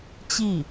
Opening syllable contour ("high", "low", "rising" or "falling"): falling